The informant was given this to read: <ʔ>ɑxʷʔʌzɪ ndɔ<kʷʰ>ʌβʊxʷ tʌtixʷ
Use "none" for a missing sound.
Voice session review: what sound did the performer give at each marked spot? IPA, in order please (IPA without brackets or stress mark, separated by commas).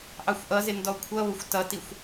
ʔ, kʷʰ